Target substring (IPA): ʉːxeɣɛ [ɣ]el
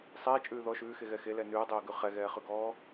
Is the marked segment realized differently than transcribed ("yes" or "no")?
yes